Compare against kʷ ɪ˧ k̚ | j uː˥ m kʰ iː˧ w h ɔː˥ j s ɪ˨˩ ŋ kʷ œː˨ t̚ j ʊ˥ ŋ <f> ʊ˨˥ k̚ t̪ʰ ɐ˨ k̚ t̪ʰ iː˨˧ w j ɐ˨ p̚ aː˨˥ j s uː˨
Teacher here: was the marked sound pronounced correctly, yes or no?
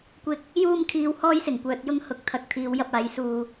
no